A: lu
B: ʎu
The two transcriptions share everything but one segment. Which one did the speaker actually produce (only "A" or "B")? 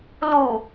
A